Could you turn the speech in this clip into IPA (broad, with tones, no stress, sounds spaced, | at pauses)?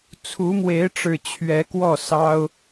t͡sʰ u˨˦ m w e˨˦ ɪ̯ ʈ͡ʂ ɻ̩˨˩ t͡ɕʰ ɥ ɛ˨˦ k w ɔ˥˨ s ɑ˦ ʊ̯